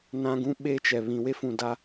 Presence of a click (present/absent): absent